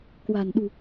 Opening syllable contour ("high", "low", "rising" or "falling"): low